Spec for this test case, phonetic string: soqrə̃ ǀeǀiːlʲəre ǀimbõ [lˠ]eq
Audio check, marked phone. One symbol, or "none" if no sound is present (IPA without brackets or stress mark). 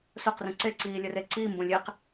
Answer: lʲ